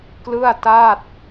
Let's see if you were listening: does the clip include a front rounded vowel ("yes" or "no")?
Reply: no